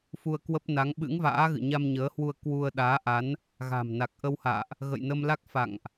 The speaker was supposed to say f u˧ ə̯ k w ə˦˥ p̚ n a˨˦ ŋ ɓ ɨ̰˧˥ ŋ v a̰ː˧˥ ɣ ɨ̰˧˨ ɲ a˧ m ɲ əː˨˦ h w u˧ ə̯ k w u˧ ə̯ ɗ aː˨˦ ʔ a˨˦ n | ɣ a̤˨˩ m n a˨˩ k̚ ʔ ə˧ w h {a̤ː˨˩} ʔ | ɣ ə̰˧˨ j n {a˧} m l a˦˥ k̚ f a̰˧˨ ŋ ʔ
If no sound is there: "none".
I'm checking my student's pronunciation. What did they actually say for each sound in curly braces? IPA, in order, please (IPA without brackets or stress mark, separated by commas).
a̰ː˧˨, ə˧